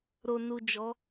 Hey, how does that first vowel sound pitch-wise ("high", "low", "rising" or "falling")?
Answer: low